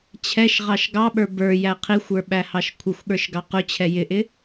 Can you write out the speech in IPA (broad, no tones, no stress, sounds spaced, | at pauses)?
t͡ɕʰ ɛ ʃ ʁ ɑ ʃ ɡ ɑ ɓ ə˞ b ə˞ j æ qʰ i xʷ ə˞ ɓ æ h ɑ ʃ kʷʰ ə xʷ ɠ ə˞ ʃ ɡ ɑ q ʊ t͡ɕʰ ɛ j ɪ ʔ ɪ